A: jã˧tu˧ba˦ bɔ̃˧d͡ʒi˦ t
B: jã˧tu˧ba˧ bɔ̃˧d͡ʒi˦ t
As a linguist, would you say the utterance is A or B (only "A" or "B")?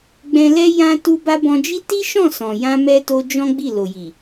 B